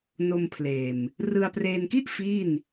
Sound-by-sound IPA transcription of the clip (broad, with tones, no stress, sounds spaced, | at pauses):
n o˧ m pʰ l eː˨˩ m | r ɯ˧ a̯ p r eː˧ n k i˥˩ ʔ f iː˥˩ n